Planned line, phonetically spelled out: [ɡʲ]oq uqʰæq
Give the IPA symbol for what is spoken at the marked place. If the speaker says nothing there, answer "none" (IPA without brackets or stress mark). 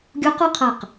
ɡʲ